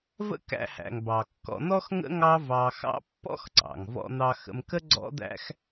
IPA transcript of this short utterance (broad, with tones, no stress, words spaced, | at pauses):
və̰˥kæ̰˧hæ̰˩ŋ bɑ˩kːɔ̰˧n̪ɔ˥xŋə̰˥ ŋɑ˥vɑ˧xɑ̰˥ pːɔ̰˥xǀɑ̰˩ŋ vɔ̰˧n̪ɑ˧xə̰˧mkə˥ ɡ͡ǀɔ̰˥d̪æ̰˥x